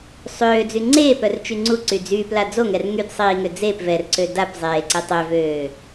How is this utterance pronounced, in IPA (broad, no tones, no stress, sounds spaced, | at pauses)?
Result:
sˤ øː d͡z y ŋ͡ǀ eː p œ r t͡ʃ y ŋ͡ǀ u ǀ y d͡z yː p l a d͡z o ŋ ɛ r ŋ y d sˤ iː ŋ ø d͡z eː p v ɛ r ǀ ø d a p zˤ eː ǀ e tˤ ø v øː